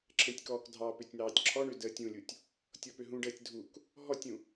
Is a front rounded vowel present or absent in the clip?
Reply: present